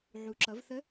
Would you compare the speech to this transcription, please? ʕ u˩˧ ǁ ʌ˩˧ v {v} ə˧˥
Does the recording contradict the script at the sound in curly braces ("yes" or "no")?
yes